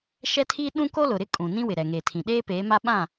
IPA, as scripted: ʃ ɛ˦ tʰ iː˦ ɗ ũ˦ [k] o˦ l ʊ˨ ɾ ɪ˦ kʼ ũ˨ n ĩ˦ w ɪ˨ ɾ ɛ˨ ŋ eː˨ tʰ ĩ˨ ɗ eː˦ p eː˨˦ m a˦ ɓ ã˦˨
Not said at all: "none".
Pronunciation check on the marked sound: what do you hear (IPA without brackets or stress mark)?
k